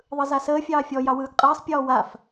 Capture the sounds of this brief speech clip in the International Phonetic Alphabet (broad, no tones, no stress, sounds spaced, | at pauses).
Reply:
ðˤ ɯ z a s əː fʲ ɑː fʲ ɔ j ɑ w ɯː ɡ qʼ ɯː sˤ pʲ ɔː w a f